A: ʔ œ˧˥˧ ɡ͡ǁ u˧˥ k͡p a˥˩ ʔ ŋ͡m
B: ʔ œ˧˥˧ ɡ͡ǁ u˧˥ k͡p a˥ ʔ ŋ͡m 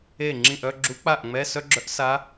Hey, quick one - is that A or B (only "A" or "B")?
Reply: A